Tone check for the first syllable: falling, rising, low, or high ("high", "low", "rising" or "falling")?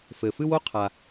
low